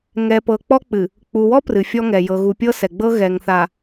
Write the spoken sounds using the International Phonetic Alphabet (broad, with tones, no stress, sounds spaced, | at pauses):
ŋ ɛ˨ p ɤ˨ k͡p ɔ˦ k͡p ɨ˨ | k͡p u˨ w ɔ˦ p r ɨ˨ fʲ ɔ˦ ŋ ɛ˨ j ɤ˨ ɣ u˨ pʲ ɤ˦ s ɛ˨ ɡ͡b ɤ˦ ɣ ɛ˨ ŋ θ a˨